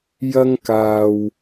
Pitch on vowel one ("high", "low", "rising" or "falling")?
high